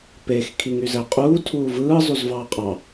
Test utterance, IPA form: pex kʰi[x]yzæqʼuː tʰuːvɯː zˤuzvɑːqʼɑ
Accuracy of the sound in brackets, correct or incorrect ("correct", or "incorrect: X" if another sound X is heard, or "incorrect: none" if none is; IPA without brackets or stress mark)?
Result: incorrect: ŋ